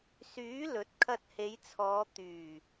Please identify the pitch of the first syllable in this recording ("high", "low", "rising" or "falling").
rising